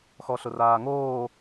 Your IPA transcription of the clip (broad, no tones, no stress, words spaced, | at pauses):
xɔɬʊraːŋoː